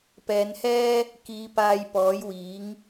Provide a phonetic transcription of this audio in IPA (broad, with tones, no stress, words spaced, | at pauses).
pɛː˨˧nhɛː˥ | kiː˨˧ paː˧j pɔː˨˥jwiː˨˥ŋ